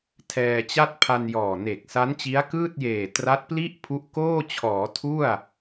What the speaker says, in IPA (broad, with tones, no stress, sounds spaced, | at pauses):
tʰ ɛː˧ t͡ɕ a˥˩ t̚ pʰ a˧ n j ɔː˨˩ n e˨˩ k̚ s a˦˥ n t͡ɕ i˦˥ a̯ k ɯː˥˩ t̚ j eː˨˩ t r a˦˥ t̚ p l i˥˩ ʔ pʰ u˦˥ ʔ k oː˥˩ t͡ɕʰ ɔː˩˦ tʰ u˥˩ a̯